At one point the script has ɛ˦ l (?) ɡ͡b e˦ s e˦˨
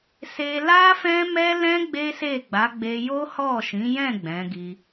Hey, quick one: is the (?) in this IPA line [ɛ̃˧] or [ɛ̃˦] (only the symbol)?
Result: ɛ̃˦